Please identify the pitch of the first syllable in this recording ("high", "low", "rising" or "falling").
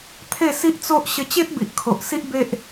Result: falling